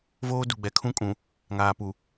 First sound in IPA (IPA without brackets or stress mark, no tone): v